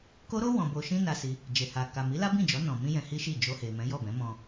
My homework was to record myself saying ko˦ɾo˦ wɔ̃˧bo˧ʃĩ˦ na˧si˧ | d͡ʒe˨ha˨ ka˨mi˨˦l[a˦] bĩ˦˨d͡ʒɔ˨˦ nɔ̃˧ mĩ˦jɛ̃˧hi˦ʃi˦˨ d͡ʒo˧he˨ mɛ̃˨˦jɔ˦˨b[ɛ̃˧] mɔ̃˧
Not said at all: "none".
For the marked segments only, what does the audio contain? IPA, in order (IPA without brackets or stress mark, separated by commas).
a˦, ɛ̃˨˦